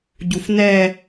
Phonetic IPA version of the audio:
ɟ u f n ɛ

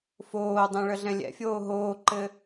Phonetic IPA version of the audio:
f oː dˤ ɛ̃ ɭ ə ɮ ɛ̃ lʲ ɛ̰ fʲ oː ɦ oː ǃ ɘ

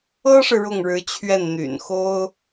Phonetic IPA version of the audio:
ɤ˥ ʂ ɻ̩˨ ɻ ʊ˥˩ ŋ ɻ ɻ̩˧˥ t͡ɕʰ ɥ ɛ˥˩ n n̪ y̰˨˩ n x o˥ ʊ̯

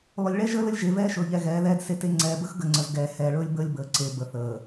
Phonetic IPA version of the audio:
lˠ ɵ˨ lʲ ɭ ɛ˦ ʒ əː˦ l ə˦ lʲ ʒ e˨ v ɛː˦ ʃ ɵː˨ ʎ ɛ˨ ɣ ɛː˨˦ ð ɛː˦ d s e˦ t e˦ ŋ͡ǀ ɛː˨ b ə˦ x ɡ ə˨ ŋ͡ǀ ə˨ z ɡ ɛː˨ h ɛː˨ ɭ ɵː˦ lʲ b əː˦ lʲ b əː˨ ǀ e˨ b ə˨ θ əː˨

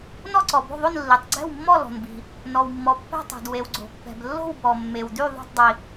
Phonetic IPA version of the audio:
n ɔ˥˨ ǀ ɔ˩ b o̤˥˨ ðˤ o˥˨ n lː i˩ tˤ ɡ͡ǀ ɛ̤˥˨ w mː ɔ˥˨ l ɔ̤˩ n b i̤˩ | n ɔ˩ w mː ɔ˩ pː ɛ̤˥˨ tˤ o̤˩ d w e˩ w ɡ͡ǀ o̤˩ pː ɛ̤˩ b lː o̤˥˨ w b ɔ˩ mː e˩ w d y˥˨ ðˤ o̤˥˨ tˤ dˤ i˩

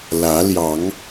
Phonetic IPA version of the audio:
l ä˨˦ l j ɑ˨˦ ŋ

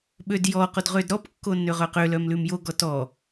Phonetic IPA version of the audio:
ɓ ø d j ɔ q o d ʁ ø d ɾ ɔ p kː o nː ø ʁ œ q ø l œ m l ʉ m j o ɡ ɔ t ɔ

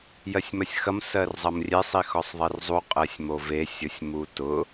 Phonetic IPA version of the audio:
j ɜ sʲ m ɐ sʲ x ɐ m s ɜ r zˤ ɐ m rʲ e sˤ i x ɔ sˤ ðˤ i r zˤ u qʼ ɜ sʲ m o v e sʲ ʊ sʲ m u t ʊ

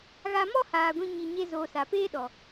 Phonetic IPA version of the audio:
ɣ a˧ m ɔ˦ h aː˨ ɡʷ ĩ˧ ɲ i˧ ɲ e˦ z oː˧ s a˨ p eː˦ ɗ ɔ˨

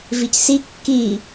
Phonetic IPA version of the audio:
v i c s i kː i

